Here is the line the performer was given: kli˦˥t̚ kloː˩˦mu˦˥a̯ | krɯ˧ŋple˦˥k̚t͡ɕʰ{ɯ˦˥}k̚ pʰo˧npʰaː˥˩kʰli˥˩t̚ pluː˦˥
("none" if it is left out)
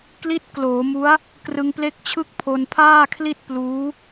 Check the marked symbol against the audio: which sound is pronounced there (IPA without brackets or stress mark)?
ɯ˥˩